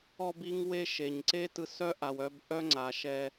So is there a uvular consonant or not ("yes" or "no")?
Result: no